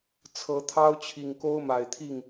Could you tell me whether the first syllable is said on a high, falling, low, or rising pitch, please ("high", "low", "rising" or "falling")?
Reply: rising